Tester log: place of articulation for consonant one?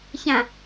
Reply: palatal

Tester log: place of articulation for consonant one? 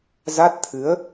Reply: alveolar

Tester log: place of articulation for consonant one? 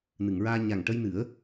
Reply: alveolar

